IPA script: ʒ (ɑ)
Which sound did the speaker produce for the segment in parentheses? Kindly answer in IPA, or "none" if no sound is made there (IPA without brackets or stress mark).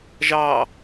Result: ɑ